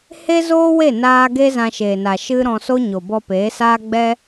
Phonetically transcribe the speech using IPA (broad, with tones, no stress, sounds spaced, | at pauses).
h e˦ z oː˦ w e˦˨ n aː˦ ɡ e˦ z ã˧ ʃ eː˨ n a˨ ʃ ɨ˦ ɾ ɔ̃˧ s o˦ ɲ o˨ b ɔ˧ p eː˨˦ s aː˦ ɡ͡b ɛ˦